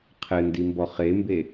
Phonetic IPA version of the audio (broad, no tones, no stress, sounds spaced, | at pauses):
qʰ ɘ n d i m b ɔ χ e m b e